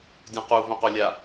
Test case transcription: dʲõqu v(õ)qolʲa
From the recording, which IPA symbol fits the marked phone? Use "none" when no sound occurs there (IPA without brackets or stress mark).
õ